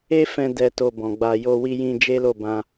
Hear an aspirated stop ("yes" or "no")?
no